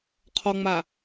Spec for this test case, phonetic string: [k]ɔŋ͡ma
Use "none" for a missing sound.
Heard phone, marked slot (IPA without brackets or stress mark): qʰ